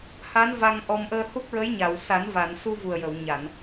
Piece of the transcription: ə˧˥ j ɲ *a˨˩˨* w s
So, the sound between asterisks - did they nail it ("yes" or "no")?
yes